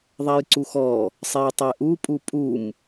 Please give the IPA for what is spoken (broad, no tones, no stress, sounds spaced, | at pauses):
ðˤ ɛ j ǀ u x ɔ | sˤ e j tˤ ɛ ʔ u pʼ u pʼ u m